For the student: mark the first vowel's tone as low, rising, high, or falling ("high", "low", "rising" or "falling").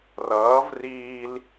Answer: rising